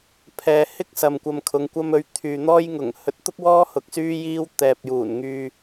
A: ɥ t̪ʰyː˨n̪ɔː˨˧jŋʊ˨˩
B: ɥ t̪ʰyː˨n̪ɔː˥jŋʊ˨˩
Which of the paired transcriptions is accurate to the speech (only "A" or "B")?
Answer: B